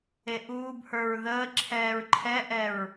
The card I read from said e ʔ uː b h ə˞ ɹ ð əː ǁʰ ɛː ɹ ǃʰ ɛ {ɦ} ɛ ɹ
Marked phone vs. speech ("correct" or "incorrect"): incorrect